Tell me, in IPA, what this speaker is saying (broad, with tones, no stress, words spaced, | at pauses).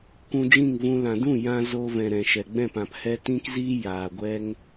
kʷũ˧d͡ʒĩ˦˨ŋvũ˧ lã˨ dũ˦˨jã˧ zo˧vɛ̃˨ ɾɛ̃˨ʃɛ˨ɡ͡bɛ̃˦˨p ã˨phɛ˦ tĩ˦kzi˦ jaː˨ɡʷɛ˦ŋ